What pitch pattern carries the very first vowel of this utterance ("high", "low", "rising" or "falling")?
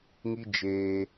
high